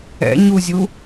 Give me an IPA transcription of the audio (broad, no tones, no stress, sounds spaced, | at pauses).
ɛ̰ ɲ u zʲ u